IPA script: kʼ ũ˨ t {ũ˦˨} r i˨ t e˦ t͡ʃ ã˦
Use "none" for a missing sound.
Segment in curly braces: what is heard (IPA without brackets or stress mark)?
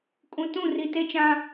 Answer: ũ˦˨